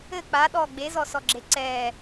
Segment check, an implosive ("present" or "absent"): present